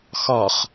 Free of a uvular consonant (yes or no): no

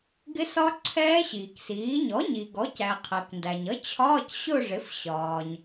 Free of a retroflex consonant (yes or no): no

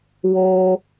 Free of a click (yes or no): yes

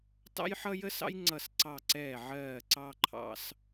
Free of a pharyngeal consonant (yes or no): no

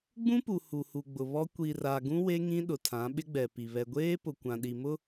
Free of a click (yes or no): yes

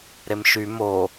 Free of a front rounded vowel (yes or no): no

